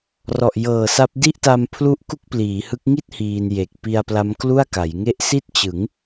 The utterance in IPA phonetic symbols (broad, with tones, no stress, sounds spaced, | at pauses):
r ɔ˨˩ ʔ j ɤː˨˩ s a˦˥ p̚ d i˥˩ ʔ t a˧ m pʰ l u˦˥ ʔ k u˥˩ k̚ p l iː˩˦ h ɯ˦˥ k̚ ŋ i˦˥ t̚ h iː˧ n j e˨˩ k̚ p i˧ a̯ p l a˦˥ m k l u˥˩ a̯ k a˩˦ j ŋ e˦˥ ʔ s i˥˩ t̚ t͡ɕ ɯ˩˦ ŋ